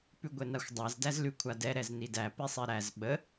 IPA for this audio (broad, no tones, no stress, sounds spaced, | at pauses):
p ʉ ɡʷ ɛ n a xʷ dˤ a z d æ z l ʉ kʷʰ a d ɛ ɾ ɛ z n i d æ p i sˤ ɛ ɾ æ z ɓ ə